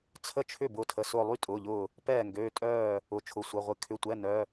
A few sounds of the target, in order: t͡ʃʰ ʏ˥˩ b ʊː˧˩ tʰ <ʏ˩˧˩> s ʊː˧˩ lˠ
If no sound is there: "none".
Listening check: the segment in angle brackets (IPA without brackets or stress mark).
ə˩˧˩